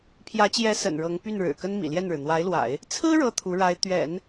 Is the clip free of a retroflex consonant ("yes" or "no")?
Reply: no